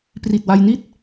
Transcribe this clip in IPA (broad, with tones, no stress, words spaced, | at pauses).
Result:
pri˨˩t̚wa˧jni˥˩t̚